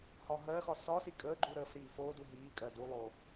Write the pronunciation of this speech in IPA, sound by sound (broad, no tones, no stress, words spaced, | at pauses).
hɒɦɜxɒ sɒsi kʼəːɡ͡ǃu ɾəːfɾiː foːdu ɦiː kʼɜdulˠoː